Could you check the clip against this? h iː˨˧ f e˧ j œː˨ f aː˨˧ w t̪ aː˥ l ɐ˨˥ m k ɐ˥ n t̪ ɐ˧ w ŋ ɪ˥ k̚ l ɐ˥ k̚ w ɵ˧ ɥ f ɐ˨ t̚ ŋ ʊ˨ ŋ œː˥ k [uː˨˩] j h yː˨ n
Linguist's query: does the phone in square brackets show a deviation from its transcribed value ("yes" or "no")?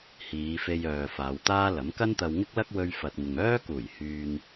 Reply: no